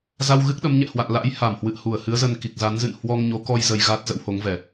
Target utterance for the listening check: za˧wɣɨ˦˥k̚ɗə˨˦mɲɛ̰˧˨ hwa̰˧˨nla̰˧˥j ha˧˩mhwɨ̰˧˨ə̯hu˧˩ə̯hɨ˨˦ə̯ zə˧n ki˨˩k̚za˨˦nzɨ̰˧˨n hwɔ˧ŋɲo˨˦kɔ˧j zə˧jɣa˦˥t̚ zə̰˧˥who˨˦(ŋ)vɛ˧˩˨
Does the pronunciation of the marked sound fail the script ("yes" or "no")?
no